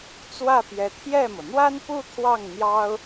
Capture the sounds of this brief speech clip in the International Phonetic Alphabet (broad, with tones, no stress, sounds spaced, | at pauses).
t͡s w ä˥˩ p j ɛ˧˥ t̪ʰ j ɛ˥˩ m ɤ˩ n̪ w a˥ n p u˥˧ t̪ʰ w ɑ˥˩ ŋ n̪ j ɑ˥ ʊ̯